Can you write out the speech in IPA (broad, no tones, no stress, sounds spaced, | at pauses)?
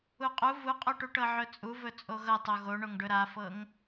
u qʼ u v u qʼ o ʈ u ʈ ɤ ʕ ɵ t͡sʼ u v ɵ t͡sʼ o ɣ ɤ tˤ o ɣ o ɳ o ŋ ɖ ɵ ɾ a f ɤ ŋ